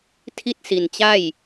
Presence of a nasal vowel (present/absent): absent